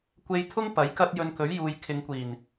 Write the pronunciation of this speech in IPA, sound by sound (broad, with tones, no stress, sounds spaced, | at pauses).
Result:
kʷ e˧ j t̪ʰ ʊ˥ ŋ p ɐ˨˥ j k ɐ˥ t̚ j ɵ˧ n k ɵ˨˥ ɥ j uː˨ j kʰ ɪ˨˧ ŋ kʷ iː˨˩ n